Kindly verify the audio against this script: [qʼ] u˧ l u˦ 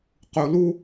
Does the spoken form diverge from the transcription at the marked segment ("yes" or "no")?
yes